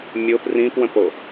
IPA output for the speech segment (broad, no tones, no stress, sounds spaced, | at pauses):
mʲ ʊ p r ĩ p w ə̃ p o